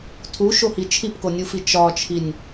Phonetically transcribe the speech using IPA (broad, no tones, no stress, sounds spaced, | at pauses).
tʰ u ʃ o h i t͡ʃʰ i p k o nʲ u f i t͡ʃ ɒ t͡ʃʰ i nʲ